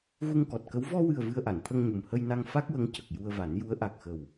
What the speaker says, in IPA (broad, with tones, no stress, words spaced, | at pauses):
ɣu˧ŋkɔ˨˩t̚kə˧˥w vɔ˧wɨ˨˩ə̯ vɨ˧ə̯ʔa˨˩˨nt̪ʰə˧ŋɲu˨˩m hə˧jna˧ŋ fa˦˥k̚wə˧˥ŋ cə˨˩k̚ ju˧ə̯va˨˩˦n ju˧˥ə̯ ʔa˨˩k̚xə˨˩w